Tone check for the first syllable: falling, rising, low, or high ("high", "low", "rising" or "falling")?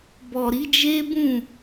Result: low